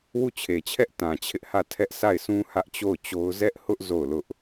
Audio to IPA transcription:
wu˦˨t͡ɕʰe˨t͡ɕʰɛ˦ʔ tã˨t͡ɕʰɪ˦ʔhä˦˨ tʰɛ˦ʔsa˦˨ɪ̯sʰũ˦ hä˦ʔt͡ɕo˦˨ʊ̯t͡ɕo˦ʊ̯ zɛ˦ʔhʊ˦ʔ zo˦˨ʊ̯lʊ˦ʔ

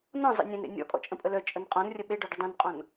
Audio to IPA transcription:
nɔ̃ zˤḛnʲẽnɾḛ nʲɔ̰kʼɔ̰ t͡ʃʼə̃pʼəlœt͡ʃʼən qʼɔ̃nrʲə ɓeɖɔ ɖədˤœ̃nqʼɔ̃n

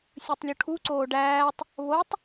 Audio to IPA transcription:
sʲɯtˤlʲuʈʰu ǀoːɖæːtˤ | βotˤ

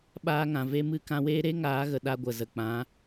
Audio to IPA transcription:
ɓaː˧ŋã˨ ve˧mɨ˦ kã˧weː˦ ɾe˦ ŋaː˨˦ɣə˨ ɗa˧ɡʷə˨zə˨ k͡pã˨˦

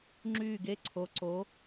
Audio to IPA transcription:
ŋ͡ǁyː˦˨ɡe˦˨ǀʰo˨˦ ǀo˨˦

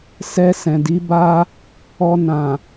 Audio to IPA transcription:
sɛ˧sɛ̃˨di˨˦ ba˦ | ɔ˧nã˨

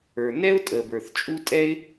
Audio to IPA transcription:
ə˞˩nɛ˥ʊ̯tʼə˩ bə˞˩θt͡ʃʼu˥tʼɛ˥ɪ̯

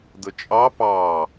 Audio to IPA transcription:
dət͡ʃʼɑ pɑ

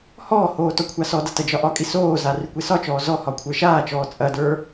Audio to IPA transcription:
hɔːhoː tɔkʷʰasɔdɐ tɐd͡ʒɒʔɒkʼi soːza rykʷesɒt͡ʃɔː zɔ hɒkʷʰə˞ʃaːt͡ʃɔː t͡sʼɐdə˞

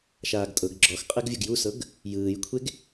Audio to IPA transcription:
ʃaːɡtʼɤɡ ɡ͡ǁɔx qʼɛɡvʲuɡjusɤɡ | jɯːjkʷʰeɡ

